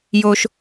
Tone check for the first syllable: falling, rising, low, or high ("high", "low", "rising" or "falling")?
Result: high